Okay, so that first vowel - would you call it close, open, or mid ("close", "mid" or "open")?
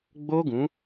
mid